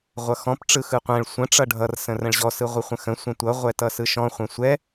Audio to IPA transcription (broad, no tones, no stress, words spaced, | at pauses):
ʁʷʌxɔ̃p ʈ͡ʂɯxɯqʷɛ̃ɭ sʷə̃ ʈ͡ʂʌɖʱʌr sə̃rə̃ɭʑɔ sɯʁʷɯχʷə̃xə̃ sʷɛ̃tʷʌ ʁʷɛtʌsɯʃɔ̃ χʷɛ̃sʷɛ